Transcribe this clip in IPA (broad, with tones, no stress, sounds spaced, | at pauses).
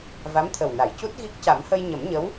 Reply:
v a˧˥ m t̪ʰ ə˨˩ w n a˨˩˨ j c u˦˥ t̚ ɣ i˦˥ k̚ c a˨˩˦ m h ə˧ j ɲ ə˨˩˦ m ɲ ə˧˥ w